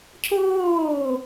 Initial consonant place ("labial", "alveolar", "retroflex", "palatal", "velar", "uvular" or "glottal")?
palatal